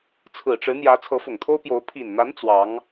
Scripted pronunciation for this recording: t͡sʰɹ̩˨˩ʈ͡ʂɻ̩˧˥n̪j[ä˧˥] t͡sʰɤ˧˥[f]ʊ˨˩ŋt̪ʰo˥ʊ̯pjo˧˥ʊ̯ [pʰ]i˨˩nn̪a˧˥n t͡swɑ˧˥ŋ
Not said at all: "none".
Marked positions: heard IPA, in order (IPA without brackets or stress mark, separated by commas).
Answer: ä˧˥, f, pʰ